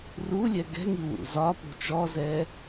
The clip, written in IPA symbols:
rulʲɛ ɡɛ̤ŋiwṵ zɒpṳ t͡ʃɔzɛ

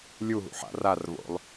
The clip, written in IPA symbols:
lʲuɦṵ ħa̰rarvo̰lˠ

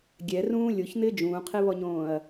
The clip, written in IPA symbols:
ɡʲɛrũː lʲoçn̪ɪː d͡ʒũːqʰiβɔɲõːɐ̯

